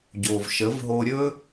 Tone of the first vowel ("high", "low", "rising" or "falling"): low